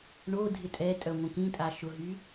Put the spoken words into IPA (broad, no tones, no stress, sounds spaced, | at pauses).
ɳ o dʱ ɪ tʼ ɛ tʼ œ ŋʷ ə̃ k ĩ tʼ a ʃ ʊ ɦ y